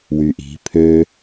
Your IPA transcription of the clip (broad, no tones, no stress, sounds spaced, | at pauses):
w y ʔ i̤ pʰ ø